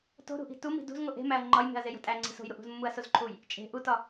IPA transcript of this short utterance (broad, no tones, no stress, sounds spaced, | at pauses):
t o̤ ɾ ṳ ʔ i̤ t u m i̤ d ṳ z ŋ o ʔ e̤ m æ ɐ̯ ŋ͡ǃ ɒ j m e̤ ɐ̯ z e j o̤ tʼ æ ŋ͡ǀ i̤ s o̤ j ɾ u ʔ ṳ z mː u ɐ̯ s o z ǃʰ u j | t͡ʃʼ e̤ ʔ u t ɒ